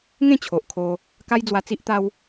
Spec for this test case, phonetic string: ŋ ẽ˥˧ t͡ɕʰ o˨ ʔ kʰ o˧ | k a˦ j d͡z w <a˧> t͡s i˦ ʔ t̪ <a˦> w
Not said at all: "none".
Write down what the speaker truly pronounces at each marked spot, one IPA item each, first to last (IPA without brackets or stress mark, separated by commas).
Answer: a˧, a˦